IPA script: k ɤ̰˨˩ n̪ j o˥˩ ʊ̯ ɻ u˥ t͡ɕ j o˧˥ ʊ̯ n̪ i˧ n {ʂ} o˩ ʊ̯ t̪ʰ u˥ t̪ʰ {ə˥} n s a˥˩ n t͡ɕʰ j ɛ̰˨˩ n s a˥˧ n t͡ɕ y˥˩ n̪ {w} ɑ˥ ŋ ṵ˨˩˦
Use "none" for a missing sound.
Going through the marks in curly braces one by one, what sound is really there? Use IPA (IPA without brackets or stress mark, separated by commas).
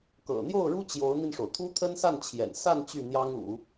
ʂ, ə˥, j